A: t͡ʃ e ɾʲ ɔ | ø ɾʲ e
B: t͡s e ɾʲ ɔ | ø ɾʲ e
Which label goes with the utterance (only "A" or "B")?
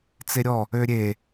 B